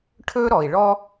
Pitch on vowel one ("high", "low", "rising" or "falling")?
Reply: high